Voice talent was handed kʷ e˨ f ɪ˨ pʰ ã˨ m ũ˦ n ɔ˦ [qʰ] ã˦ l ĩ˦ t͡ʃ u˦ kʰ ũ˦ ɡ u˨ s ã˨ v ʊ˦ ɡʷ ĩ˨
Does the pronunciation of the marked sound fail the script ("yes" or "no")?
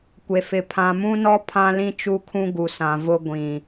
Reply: yes